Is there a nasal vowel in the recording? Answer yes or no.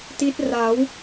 no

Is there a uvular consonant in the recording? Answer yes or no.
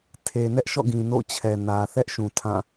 no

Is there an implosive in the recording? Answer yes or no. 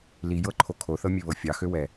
no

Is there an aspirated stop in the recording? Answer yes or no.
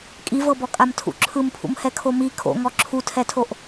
yes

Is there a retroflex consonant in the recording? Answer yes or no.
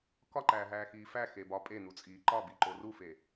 no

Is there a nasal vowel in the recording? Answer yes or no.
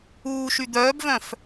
yes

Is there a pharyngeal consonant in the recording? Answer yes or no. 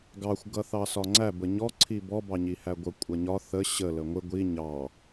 no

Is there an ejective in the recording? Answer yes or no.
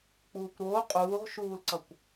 yes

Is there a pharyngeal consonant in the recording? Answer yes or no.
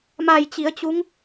no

